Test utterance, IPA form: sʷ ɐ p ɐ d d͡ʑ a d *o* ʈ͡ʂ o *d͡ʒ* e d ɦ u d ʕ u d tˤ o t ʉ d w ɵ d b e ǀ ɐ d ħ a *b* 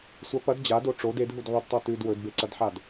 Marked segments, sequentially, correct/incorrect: correct, incorrect: d, incorrect: d

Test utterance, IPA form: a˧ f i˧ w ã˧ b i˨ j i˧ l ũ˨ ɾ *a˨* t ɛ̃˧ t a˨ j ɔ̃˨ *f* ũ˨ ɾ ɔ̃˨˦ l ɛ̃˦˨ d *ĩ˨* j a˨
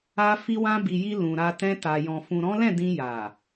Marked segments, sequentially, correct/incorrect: correct, correct, incorrect: ĩ˧

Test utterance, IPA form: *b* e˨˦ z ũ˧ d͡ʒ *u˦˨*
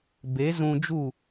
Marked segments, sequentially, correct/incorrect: correct, correct

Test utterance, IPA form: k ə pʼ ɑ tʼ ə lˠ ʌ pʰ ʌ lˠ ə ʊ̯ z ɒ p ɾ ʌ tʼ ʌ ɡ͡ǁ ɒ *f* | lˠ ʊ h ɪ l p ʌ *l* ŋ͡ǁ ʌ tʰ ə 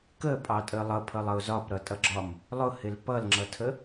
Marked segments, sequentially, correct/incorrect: incorrect: m, correct

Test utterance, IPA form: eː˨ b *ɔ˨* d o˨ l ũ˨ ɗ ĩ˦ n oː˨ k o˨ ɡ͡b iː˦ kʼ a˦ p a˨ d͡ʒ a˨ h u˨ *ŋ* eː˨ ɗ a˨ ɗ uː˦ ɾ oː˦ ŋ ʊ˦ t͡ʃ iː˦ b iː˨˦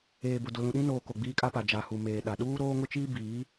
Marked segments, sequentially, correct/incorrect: incorrect: ʊ˨, incorrect: m

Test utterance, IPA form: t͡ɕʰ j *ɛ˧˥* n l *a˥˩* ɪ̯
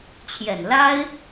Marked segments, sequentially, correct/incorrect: incorrect: ɛ˨˩, incorrect: a˥

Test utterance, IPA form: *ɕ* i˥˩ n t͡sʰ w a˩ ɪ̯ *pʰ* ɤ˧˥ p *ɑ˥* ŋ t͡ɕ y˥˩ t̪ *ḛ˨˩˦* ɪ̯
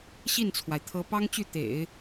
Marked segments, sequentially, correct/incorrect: correct, incorrect: t̪ʰ, correct, correct

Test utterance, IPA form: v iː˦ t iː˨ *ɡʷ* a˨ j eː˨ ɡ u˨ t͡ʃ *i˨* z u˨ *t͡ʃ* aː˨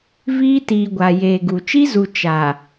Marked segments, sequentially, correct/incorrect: correct, incorrect: i˦, correct

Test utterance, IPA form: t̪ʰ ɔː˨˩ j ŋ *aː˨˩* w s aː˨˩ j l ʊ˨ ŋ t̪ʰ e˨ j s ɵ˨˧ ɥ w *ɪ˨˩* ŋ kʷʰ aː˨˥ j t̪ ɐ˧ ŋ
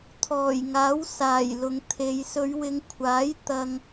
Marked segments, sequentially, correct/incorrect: incorrect: aː˨˥, incorrect: ɪ˨˧

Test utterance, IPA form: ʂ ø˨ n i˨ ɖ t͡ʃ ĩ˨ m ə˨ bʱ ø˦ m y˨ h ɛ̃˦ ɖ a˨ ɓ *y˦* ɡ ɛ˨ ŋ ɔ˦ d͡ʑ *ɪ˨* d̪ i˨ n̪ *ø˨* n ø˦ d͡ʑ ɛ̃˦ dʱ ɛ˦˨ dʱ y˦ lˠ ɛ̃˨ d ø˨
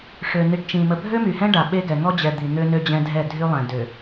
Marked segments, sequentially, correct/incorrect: incorrect: e˦, incorrect: ɛ˨, incorrect: ø˦

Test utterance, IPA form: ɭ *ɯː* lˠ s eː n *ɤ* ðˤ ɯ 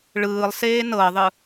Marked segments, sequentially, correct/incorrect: correct, correct

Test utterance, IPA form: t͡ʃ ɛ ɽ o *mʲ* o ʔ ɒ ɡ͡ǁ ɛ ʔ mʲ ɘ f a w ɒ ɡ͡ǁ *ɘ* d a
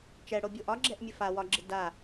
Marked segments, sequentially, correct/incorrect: incorrect: bʲ, correct

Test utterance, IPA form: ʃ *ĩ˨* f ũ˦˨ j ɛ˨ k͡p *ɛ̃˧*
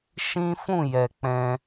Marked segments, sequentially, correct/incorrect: incorrect: ĩ˦, correct

